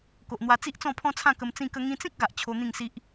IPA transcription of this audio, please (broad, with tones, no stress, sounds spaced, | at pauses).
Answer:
k o˨ ʔ n̪ w a˧ t͡s i˦ ʔ t͡s ɔ̃˥˧ pʰ ɔ̃˦ t͡sʰ ã˥˧ k ə˧ m t͡s ĩ˥˧ k ə˦ ŋ ĩ˧ t͡s ĩ˦ k̚ ɡ a˨ ʔ t͡ɕʰ o˧ n̪ ĩ˥˧ ŋ s i˦ ʔ